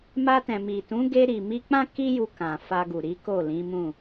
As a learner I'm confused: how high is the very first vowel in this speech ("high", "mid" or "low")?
low